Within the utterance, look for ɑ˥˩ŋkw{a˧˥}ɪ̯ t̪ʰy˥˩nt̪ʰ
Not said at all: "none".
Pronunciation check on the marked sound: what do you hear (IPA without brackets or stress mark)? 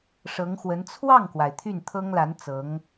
a˩